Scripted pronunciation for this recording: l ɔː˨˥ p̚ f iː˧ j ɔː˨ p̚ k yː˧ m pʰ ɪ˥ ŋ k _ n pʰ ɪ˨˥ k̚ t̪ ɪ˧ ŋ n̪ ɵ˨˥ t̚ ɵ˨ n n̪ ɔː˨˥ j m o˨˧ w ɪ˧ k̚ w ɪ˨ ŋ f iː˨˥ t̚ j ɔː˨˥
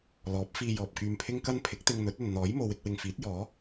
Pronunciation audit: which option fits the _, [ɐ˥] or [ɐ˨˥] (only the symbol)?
ɐ˥